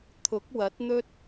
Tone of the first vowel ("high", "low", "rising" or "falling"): rising